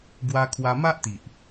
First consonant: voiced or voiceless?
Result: voiced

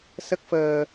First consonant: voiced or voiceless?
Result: voiceless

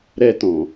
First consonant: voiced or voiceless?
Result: voiced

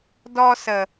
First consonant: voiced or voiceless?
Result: voiced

